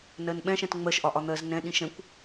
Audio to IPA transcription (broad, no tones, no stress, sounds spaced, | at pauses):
n ɜ n ɓ ɛ̃ ʃ ɛ̃ t ŋ͡m ɜ ʃ ʔ ɒ ʔ ɒ n̪ ɜ z n ɛ̃ ɗ ĩ ʃ ɛ̃ kʷ